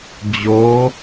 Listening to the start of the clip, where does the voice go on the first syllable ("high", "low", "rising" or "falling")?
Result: rising